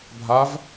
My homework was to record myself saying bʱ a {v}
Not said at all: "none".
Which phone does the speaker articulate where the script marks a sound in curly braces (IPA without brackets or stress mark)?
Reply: v